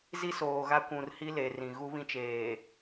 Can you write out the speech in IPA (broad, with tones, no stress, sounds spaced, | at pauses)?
z i˦ s oː˨ ɣ a˦ kʷ ũ˨ r h i˦ l e˨ r ĩ˨ ɣ u˦ β ĩ˦ t͡ʃ eː˨